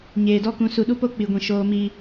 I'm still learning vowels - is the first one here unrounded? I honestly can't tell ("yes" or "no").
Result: yes